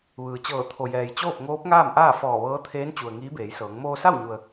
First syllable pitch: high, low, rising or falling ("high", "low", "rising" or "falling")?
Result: low